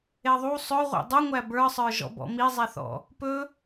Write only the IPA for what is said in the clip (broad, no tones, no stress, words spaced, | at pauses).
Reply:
eðˤu sˤɵʁʷɛ̰ dˤuŋʷæ bə˞sˤə˞ʒɔ̰bɔ̰ mizˤɛθɔ̰ | pɵ